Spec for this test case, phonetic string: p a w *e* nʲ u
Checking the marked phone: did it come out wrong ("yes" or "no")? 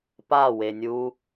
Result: no